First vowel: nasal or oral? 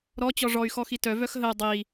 oral